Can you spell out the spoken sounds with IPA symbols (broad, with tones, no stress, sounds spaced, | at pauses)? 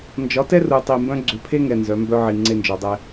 n d͡ʒ ɒ˨˦ t ɛ˦ r u˨ tˤ i˨ m b œ̃˦ ɡ͡ǀ ʏ˨˦ pʰ e˦ ŋ ɛ˨ n z œ˨˦ m b œ˦ ʕ i˨ ŋ͡ǀ e˦ n d͡ʒ ɔ˨ dˤ ɛ˦